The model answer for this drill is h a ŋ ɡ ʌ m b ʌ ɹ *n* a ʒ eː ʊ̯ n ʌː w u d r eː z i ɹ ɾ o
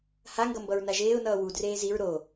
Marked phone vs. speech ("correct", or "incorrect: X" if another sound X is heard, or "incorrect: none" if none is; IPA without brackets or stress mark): correct